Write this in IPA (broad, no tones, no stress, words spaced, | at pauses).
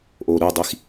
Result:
ʔoɾudˤix